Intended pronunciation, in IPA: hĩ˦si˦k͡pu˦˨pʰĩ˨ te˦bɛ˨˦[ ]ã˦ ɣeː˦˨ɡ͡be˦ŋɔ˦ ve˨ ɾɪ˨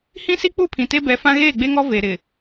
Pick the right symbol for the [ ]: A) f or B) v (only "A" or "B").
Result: A